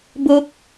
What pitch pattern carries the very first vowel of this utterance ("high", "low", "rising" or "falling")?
high